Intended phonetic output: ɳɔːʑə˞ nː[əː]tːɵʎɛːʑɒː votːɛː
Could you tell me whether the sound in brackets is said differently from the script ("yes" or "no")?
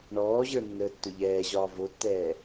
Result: no